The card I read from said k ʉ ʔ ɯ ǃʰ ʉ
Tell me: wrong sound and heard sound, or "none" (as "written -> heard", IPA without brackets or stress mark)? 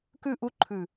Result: ɯ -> u